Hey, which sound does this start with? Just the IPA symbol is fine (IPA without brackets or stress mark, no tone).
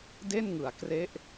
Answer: d